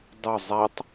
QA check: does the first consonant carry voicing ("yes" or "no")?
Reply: yes